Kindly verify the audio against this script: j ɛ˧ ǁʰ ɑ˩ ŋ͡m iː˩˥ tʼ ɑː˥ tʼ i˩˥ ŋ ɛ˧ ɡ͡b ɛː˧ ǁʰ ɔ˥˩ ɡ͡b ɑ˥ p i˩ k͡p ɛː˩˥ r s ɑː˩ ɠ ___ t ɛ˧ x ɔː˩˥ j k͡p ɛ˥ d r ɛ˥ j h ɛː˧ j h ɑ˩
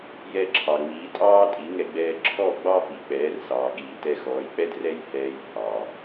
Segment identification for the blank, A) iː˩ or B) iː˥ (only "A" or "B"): A